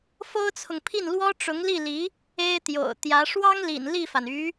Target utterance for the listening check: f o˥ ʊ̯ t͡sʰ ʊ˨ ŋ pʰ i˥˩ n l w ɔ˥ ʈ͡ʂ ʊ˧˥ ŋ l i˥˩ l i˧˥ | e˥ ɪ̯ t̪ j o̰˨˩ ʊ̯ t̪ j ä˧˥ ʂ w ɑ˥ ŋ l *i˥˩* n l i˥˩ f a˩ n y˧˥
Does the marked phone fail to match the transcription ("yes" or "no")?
yes